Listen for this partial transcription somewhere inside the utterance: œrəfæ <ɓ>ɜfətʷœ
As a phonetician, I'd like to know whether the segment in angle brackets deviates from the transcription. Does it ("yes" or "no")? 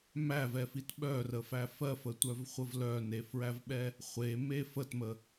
yes